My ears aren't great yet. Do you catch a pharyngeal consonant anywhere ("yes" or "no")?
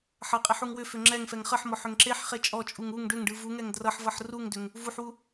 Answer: yes